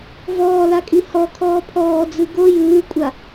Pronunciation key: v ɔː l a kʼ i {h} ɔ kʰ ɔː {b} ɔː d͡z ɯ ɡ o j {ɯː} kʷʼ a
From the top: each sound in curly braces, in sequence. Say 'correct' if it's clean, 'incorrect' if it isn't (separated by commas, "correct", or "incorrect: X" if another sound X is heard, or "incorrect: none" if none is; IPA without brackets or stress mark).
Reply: correct, incorrect: pʰ, correct